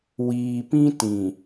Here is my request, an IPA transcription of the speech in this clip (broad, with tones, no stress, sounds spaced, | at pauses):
w iː˨ p ĩ˦ t ĩ˨